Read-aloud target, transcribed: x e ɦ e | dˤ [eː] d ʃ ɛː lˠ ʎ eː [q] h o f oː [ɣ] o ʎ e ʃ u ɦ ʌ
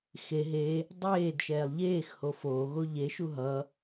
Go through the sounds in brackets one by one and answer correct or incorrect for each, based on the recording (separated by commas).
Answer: correct, incorrect, correct